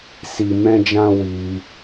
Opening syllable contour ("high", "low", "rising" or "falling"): low